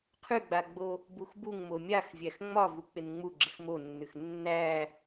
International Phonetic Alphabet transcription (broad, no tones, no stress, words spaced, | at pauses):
qʰʉɡ͡baɡ͡bo | buxbuŋ momʲaxvʲæx ŋ͡mɒ vuk͡pɪnŋ͡mu ɡ͡ǁɪxmonːʉx nːæ